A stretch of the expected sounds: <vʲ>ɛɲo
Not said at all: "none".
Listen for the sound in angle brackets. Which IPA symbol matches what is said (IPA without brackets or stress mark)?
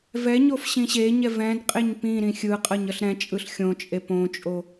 v